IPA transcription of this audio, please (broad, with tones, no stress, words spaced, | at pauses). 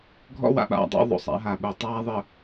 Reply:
ɡʱɔ̰˦wa̰˨ɓa̰˦˨dˤḭ˦ ðˤo̰˨sˤa̰˦ɦa˨ ɓu˨tˤaː˦ðˤɘ˨